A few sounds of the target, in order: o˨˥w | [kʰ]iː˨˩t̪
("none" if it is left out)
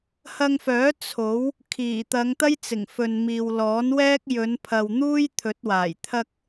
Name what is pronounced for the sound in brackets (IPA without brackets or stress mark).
kʰ